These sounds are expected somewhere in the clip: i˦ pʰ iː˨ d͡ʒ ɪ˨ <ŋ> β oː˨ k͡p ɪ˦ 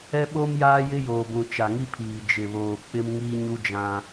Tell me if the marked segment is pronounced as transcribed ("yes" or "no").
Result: no